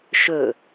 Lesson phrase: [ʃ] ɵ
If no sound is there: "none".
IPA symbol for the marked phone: ʃ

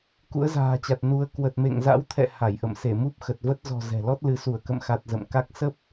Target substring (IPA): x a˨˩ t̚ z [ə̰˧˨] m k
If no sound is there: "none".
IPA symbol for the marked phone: ə̰˧˨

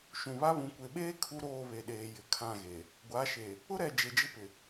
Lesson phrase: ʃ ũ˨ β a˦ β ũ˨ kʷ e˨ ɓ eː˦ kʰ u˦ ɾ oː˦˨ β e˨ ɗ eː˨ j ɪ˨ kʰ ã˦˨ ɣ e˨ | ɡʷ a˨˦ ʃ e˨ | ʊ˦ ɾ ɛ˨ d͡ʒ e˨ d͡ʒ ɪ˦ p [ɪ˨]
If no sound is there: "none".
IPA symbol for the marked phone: ɪ˨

